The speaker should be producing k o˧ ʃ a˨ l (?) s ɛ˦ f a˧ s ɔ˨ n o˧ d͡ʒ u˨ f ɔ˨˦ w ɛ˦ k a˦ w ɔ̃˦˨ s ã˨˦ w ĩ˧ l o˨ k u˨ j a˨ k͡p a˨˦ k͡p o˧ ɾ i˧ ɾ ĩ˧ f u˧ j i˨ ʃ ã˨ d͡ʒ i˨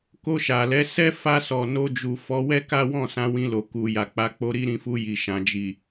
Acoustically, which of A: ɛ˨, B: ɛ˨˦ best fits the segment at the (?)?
B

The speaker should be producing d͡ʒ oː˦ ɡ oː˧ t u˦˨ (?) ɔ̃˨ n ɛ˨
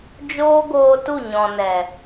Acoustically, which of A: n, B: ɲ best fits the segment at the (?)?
B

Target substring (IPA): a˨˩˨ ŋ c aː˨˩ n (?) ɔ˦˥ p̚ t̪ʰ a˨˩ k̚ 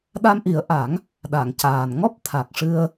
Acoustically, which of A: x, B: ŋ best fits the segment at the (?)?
B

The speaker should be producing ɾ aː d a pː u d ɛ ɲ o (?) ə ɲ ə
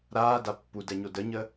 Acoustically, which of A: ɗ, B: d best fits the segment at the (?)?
B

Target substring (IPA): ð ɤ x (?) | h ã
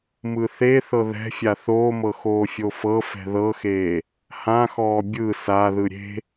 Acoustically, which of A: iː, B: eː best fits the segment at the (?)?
B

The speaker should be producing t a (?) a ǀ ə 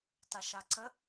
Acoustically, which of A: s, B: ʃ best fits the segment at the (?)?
B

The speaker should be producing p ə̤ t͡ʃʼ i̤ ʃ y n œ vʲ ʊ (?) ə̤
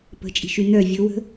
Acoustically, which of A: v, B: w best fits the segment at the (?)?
B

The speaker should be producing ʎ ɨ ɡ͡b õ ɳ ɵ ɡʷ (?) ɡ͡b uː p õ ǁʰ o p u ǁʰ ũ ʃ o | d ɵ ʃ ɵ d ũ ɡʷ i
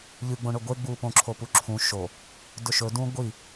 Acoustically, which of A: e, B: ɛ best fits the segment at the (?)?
A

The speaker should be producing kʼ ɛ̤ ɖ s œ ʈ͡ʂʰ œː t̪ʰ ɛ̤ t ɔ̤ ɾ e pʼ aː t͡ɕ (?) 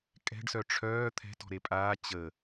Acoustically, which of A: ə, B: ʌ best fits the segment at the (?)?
A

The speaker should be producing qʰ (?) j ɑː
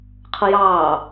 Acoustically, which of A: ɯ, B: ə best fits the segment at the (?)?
B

